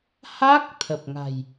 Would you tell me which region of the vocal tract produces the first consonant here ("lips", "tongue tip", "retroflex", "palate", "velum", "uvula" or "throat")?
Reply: throat